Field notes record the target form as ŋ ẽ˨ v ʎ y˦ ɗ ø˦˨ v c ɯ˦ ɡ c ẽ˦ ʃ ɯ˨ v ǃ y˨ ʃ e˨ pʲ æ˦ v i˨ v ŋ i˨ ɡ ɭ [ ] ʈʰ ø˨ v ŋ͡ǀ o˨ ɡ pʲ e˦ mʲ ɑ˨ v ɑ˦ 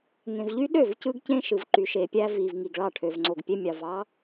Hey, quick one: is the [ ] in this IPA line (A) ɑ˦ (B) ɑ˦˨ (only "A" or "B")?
B